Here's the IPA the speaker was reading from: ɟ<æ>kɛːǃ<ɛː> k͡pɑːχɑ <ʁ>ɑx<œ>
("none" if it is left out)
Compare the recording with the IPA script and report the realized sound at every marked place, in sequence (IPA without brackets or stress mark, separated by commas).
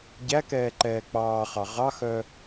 æ, ɛː, ʁ, œ